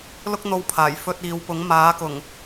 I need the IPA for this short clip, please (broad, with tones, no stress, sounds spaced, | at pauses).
l ʊ˥ k̚ n̪ o˧ w pʰ aː˨˩ j f ɵ˧ t̚ iː˨˧ w p ʊ˨˥ ŋ m aː˨˥ k ʊ˨˩ ŋ